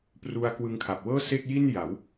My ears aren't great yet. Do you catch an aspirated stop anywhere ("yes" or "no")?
yes